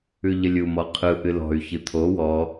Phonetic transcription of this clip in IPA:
ʉʎəlʲumɔ qʰɯ ʔɨlɔ̤y̯çɨ t̪ʰo wɔ

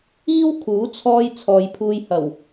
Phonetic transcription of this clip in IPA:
iː˥w kʰuː˨˥ t͡sʰɔː˧j t͡sʰɔː˨˧jpʰuː˧j hɐ˨˩w

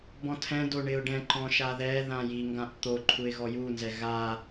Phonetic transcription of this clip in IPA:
bɔ̃tʰɛ̃do ɳɪʊ̯ɖɛ̃ǃɔ̃ ʃaðɛðã jiŋɡãʔ t̪o ǃʰuɪ̯ɣɔjunzɛ ɣa

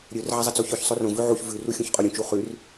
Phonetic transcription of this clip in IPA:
ɾʲɵr ʕɐzˤɐt͡soçɵç sˤorõ vʉʕuç vʉ ruxʲõçqʼoɾʲũ t͡ʃuχʉr

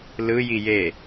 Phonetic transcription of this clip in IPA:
lɯ jije

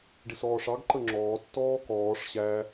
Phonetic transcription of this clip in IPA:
ɖɪsɔːʂɑɡ ǃəŋ͡ǁɔː tːɔːkɔːʂ ɕæ

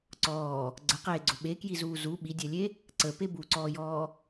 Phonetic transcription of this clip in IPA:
ǀɔː | ɡ͡ǀəqeːɡ͡ǀʊ ɓekjizuː zu ɓidʲɛlʲe | ǀəpe buǀɔːjɔː

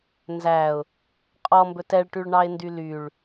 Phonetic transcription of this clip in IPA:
nzæʊ̯ | qʼɔmbɵt ɛɭʈyɭɳɑɪ̯ndy lyɭ

